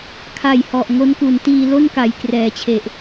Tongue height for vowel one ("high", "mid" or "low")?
low